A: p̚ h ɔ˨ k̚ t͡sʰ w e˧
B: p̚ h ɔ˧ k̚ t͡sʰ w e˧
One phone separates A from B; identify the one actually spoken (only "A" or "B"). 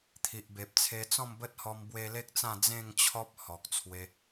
A